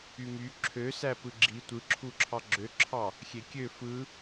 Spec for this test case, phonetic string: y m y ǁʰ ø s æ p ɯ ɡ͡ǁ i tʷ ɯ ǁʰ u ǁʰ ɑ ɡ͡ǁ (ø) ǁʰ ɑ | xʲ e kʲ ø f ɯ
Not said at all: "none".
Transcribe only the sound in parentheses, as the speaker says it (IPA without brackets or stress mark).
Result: ø